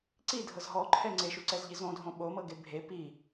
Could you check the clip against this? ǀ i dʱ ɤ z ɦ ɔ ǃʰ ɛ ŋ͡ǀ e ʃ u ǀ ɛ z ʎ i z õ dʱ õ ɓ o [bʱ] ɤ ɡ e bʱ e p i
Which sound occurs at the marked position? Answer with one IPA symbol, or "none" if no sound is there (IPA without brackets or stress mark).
m